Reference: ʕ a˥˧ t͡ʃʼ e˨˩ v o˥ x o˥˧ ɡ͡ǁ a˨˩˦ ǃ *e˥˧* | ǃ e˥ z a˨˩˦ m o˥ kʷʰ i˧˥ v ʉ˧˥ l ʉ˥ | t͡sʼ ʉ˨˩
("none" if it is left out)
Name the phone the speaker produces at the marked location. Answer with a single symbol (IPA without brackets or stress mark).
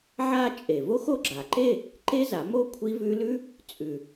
e˥˧